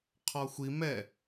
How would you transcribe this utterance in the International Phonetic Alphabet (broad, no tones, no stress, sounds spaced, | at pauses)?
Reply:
qʰ ɔ xʷ i m ɛ